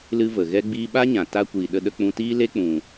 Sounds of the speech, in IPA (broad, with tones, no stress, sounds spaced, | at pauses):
l ɨ˧ v ə˨ ɣ ɛ˧ ɡ͡b iː˧ ɓ a˦ ɲ ã˨ t a˧ kʷ iː˨ ɗ ə˧ ɗ ə˧ k͡p ũ˧ t iː˦ l e˦ k͡p ũ˨